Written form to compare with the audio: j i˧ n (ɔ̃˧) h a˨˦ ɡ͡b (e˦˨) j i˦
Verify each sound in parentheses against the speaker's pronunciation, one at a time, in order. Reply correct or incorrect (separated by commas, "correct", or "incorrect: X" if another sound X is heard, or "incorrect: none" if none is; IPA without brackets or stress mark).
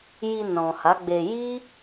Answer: incorrect: ɔ̃˨, incorrect: e˧